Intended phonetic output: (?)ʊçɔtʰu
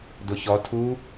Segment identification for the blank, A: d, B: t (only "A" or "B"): A